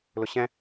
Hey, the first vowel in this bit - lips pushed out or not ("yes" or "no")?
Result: yes